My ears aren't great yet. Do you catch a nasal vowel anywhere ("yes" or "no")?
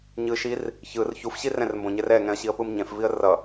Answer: yes